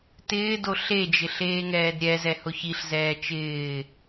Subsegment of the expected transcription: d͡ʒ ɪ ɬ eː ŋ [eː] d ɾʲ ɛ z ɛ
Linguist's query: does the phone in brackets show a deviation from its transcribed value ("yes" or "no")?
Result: yes